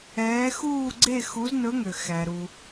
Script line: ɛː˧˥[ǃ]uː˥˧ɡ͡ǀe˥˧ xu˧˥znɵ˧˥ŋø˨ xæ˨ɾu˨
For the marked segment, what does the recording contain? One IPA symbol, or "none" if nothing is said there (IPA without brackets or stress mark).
x